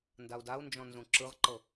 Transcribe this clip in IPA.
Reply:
n d a u̯ d a u̯ n d͡ʒ ɔ̃ n z ũ ǁ ɯ ʁ ǃ ɤ

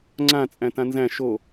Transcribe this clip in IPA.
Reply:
ŋ͡ǀ ã t͡sʼ æ̃ t ã n z æ̃ ʃ o

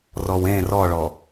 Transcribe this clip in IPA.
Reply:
r ɔ w ẽ r ɔ ɭ ɔ

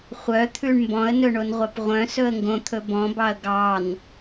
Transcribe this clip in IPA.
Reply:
χʷ œ t̪ʰ ʉ ɳ m b ɔ̃ ə̯ n ɵ ɳ o n ʁʷ ɑ p ʁʷ œ̃ s ɵ ə̯ ŋ ɡ õ t̪ʰ ɵ b ɔ̃ b ɑ ə̯ ɡ ɑ n

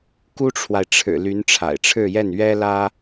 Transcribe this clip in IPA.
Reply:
k u˥ ʈ͡ʂʰ w a˨ ɪ̯ ʈ͡ʂʰ ɻ̩˨˩ l y˧˥ n ʈ͡ʂʰ a̰˨˩ ɪ̯ ʈ͡ʂʰ ɻ̩˥˧ j ɛ˥˩ n ɥ ɛ˥ l ä˥

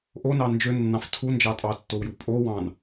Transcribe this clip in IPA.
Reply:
ʔ o n ɑ n d͡ʒ ø nː ɑ̃ f tʰ u n d͡ʒ ɑ tʼ ɑ tː o w j u pʼ o w ɑ̃ n

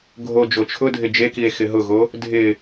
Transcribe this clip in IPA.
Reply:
ɡʱ o d͡ʒ o t͡ʃʰ ʊ dʱ ɪ d͡ʒ e k i e̯ x ɪ ɦ ʊ ɣ o | dʱ ɪ

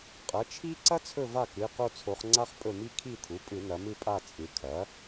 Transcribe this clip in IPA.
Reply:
qʼ ɐ˩˥ t͡ʃʰ i˥ ǀ ɐ˥ t͡sʰ ɵ˦˨ v a˦˨ k ɨ˩˧˩ q o˦˨ t͡sʰ o˩˧ χ ŋ͡ǀ a˥ χ pʼ ɵ˦˨ m i˥ kʰ i˦˨ t̪ʰ u˩˥ pʼ ɨ˧˩˧ n ɐ˩˧ m ɨ˦˨ pʼ a˦˨ t͡sʼ ɨ˩˧ kʰ ɐ˩˥

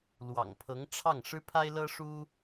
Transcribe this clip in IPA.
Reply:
l w ɑ̰˨˩ ŋ pʰ ɤ˧˥ ŋ ʈ͡ʂʰ ɑ˥˩ ŋ ʂ ɻ̩˥ pʰ a˥ ɪ̯ l ɤ˥ ʂ u˥

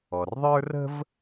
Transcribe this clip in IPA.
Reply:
ɔ˩ r ðˤ ə˞˥ r ə̤˥ v

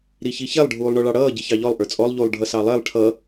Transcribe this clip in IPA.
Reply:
ɾ i ç i ç ɛ lˠ ɖʱ uː lˠ ɳ ɔ ɭ ɑ ɽ ʌː ɟ i ç ɑ ʎ ɔ lˠ ʔ ə˞ t͡sʼ ɔ lˠ ʎ u lˠ ɖʱ ʌ s ɑ lˠ ɛ lˠ ʈʰ ʌ

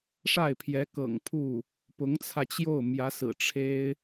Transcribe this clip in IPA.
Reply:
ʂ a˥˩ ɪ̯ pʰ j ɛ˧˥ k ɤ̰˨˩ ŋ pʰ u˥˩ | p ʊ˧˥ ŋ t͡sʰ ä˧ t͡ɕ j o˥˩ ʊ̯ m j ä˧˥ s ɹ̩˨˩ ʈ͡ʂʰ e˥ ɪ̯

